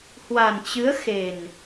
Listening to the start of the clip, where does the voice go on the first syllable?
low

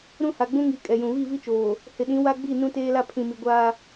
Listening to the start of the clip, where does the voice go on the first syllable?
high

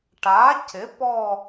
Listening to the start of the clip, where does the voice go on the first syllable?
rising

